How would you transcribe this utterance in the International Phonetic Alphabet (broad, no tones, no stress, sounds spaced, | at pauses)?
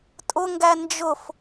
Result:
tʼ ʊ ŋ ɡ æ n d͡ʒ ʊ f